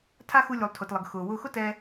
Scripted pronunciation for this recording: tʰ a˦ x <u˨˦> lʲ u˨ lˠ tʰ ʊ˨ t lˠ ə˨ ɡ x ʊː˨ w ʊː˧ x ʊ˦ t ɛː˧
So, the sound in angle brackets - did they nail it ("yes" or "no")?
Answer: no